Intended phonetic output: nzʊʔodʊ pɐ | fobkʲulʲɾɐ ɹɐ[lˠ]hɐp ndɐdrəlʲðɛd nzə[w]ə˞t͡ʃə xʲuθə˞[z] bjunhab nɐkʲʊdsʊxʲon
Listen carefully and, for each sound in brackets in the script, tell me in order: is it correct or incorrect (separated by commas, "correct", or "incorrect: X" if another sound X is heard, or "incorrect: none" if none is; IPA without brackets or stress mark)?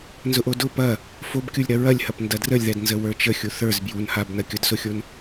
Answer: incorrect: lʲ, correct, correct